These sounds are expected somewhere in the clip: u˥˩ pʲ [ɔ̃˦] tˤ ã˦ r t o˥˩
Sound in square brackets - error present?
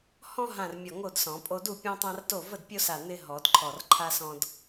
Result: no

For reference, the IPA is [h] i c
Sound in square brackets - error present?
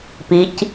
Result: yes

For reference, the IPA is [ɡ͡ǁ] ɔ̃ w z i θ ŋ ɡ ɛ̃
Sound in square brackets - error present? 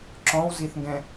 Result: yes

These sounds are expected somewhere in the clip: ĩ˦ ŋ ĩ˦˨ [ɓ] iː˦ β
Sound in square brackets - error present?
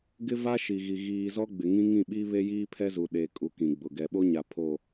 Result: no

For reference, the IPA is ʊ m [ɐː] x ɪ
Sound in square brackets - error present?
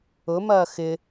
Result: no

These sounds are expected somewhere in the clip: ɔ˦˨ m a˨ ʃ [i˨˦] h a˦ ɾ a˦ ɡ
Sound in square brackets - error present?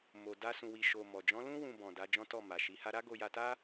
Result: no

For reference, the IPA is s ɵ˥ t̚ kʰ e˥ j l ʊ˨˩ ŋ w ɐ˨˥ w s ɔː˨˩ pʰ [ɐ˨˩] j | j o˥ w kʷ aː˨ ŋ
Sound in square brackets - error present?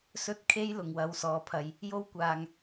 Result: no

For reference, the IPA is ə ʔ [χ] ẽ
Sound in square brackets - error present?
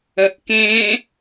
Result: yes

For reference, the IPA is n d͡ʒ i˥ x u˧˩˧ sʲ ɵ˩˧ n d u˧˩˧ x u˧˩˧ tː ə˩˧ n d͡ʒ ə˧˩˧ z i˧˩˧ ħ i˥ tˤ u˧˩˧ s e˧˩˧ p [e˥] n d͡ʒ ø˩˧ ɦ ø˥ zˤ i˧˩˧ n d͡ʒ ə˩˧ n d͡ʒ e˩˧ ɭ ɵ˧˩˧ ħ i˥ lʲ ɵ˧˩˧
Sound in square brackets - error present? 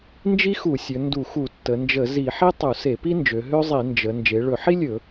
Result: yes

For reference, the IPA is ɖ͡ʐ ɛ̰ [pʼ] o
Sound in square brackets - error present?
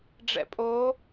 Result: no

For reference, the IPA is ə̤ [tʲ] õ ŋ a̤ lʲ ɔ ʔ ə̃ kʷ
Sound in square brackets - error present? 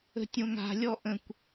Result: no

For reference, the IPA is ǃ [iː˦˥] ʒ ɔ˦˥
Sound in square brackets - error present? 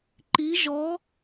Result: yes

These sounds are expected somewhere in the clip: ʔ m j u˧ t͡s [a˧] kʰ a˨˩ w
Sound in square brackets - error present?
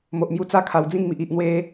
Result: yes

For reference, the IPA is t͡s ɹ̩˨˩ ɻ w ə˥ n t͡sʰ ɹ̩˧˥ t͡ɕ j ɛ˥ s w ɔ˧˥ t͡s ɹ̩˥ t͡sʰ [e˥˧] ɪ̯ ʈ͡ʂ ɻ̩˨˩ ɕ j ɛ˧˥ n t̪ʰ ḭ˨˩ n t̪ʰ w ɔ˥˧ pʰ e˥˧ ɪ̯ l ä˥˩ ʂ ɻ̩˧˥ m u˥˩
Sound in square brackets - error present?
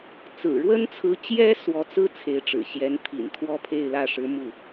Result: yes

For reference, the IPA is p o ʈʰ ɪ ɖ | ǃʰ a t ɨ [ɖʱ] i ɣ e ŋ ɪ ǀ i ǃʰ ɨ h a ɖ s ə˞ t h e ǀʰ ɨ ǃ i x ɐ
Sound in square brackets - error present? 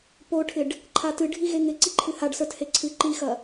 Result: no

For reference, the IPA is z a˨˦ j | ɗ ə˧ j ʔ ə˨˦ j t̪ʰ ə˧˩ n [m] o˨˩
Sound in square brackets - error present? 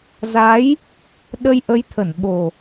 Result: yes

